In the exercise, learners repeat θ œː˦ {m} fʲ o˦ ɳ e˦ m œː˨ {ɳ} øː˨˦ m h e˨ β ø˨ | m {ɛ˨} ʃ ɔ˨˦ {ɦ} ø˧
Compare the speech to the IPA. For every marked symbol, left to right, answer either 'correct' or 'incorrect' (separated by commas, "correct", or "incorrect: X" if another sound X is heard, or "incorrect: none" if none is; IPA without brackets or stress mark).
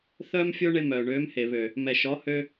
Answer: correct, correct, correct, incorrect: h